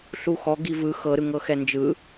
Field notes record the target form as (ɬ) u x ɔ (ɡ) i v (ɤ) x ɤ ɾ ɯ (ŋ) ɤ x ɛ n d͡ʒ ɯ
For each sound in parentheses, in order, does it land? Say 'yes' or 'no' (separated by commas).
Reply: yes, yes, no, yes